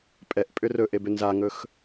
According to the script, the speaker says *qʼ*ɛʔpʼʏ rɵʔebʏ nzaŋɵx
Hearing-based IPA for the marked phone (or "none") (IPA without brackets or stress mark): pʼ